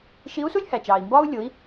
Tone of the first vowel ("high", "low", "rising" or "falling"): rising